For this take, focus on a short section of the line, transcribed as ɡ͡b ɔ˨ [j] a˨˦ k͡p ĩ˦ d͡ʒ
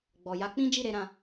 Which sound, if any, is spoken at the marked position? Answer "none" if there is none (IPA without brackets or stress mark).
j